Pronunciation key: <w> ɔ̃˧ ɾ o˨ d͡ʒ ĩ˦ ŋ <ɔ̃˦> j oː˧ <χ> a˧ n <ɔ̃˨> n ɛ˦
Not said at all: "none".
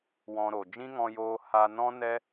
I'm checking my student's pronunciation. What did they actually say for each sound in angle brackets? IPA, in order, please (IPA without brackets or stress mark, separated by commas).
w, ɔ̃˧, h, ɔ̃˦